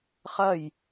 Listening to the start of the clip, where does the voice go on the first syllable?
falling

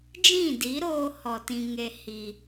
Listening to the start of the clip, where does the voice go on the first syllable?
falling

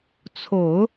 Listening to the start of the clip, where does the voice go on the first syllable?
low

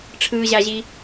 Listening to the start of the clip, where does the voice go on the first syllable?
high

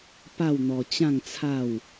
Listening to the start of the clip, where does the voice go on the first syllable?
falling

